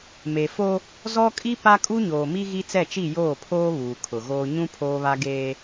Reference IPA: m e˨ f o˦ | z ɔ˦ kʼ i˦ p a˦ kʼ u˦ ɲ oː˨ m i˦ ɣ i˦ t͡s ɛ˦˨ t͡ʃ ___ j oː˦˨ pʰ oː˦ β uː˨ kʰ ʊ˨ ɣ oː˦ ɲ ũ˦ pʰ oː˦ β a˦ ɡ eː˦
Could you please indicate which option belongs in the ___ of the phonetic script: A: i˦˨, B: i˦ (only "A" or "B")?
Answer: A